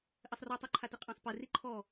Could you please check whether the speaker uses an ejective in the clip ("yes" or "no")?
yes